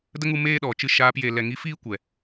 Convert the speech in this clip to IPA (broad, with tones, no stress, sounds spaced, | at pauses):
d ə˦ ŋ u˧ m eː˧ ɗ ɔ˨ t͡ʃ ɨ˧ ʃ aː˧ p j e˨ l ɛ˨ ŋ i˨˦ f iː˦ kʷ ɛ˨